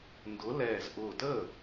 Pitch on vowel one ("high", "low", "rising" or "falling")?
rising